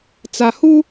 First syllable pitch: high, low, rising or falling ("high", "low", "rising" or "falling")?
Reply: low